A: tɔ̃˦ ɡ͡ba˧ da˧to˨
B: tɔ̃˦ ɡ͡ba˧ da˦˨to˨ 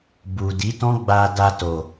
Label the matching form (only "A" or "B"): A